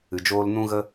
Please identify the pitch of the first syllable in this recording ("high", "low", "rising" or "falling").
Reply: low